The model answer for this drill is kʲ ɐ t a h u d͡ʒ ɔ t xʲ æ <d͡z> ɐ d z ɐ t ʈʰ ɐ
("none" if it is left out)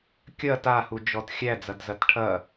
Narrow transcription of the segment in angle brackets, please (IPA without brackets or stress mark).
d͡z